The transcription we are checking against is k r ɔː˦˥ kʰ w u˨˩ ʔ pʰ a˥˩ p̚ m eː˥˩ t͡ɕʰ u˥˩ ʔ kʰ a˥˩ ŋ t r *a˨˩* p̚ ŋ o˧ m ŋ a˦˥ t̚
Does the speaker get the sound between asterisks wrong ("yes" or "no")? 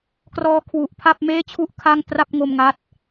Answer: yes